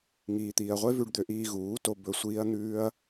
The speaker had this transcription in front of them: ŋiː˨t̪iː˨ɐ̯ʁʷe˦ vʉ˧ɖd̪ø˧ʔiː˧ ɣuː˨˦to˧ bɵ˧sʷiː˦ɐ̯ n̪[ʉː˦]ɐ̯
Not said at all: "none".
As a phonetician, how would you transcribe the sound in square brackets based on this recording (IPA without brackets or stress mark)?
ʉː˦